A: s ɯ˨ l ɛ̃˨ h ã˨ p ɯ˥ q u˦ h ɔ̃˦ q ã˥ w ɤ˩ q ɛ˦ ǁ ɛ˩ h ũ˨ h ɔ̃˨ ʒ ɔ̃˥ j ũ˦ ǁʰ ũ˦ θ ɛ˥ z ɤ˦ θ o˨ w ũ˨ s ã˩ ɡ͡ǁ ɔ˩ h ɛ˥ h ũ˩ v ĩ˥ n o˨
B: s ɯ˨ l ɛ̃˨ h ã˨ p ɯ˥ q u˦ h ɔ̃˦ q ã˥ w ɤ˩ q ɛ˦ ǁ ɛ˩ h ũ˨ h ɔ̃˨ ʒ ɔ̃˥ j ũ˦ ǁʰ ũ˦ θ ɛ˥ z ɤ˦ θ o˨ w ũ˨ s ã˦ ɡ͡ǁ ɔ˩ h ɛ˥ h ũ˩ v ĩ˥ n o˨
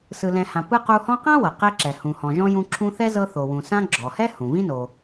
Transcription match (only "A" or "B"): B